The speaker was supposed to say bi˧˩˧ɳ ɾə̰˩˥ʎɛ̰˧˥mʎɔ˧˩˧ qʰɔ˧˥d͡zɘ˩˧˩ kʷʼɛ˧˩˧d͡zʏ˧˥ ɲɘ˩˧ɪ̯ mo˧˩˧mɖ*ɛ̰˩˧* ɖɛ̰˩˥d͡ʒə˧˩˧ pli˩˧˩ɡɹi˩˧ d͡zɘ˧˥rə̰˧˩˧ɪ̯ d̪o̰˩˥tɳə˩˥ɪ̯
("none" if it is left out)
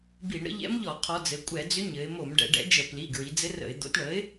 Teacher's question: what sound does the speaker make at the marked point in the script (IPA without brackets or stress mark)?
ɛ̰˩˧